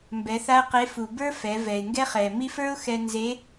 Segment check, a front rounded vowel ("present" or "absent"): absent